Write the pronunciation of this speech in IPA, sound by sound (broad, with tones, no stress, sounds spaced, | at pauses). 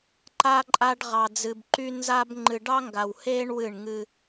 ǃ a˦ ǃʼ a˦ ɖ ʁ ɑ˨ d͡z ɨ˨ b ǃ y˦ n z a˦ b ŋ͡ǃ ɨ˨ ɖ ɑ˦ ŋ ɡ a˨ w h eː˦ ɳ w ɨ˦˨ ɳ ŋ ɨ˦